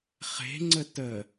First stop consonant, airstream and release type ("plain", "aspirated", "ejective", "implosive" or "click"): click